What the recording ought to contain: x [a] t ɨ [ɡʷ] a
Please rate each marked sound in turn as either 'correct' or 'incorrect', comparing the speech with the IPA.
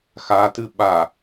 correct, incorrect

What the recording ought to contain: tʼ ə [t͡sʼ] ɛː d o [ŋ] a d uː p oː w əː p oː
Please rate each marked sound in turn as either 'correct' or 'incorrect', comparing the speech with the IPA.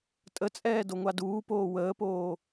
correct, incorrect

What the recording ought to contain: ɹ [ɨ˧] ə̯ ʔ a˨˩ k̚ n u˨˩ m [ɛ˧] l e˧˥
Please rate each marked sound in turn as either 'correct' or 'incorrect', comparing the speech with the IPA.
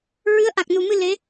incorrect, incorrect

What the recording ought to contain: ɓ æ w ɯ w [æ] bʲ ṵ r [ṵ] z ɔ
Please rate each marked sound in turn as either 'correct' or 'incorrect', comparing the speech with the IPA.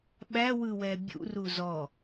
incorrect, incorrect

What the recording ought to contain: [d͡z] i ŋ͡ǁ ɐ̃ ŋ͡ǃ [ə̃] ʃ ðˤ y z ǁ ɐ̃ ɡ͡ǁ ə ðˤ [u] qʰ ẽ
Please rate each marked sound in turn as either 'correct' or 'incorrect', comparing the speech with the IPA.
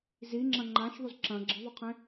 incorrect, incorrect, incorrect

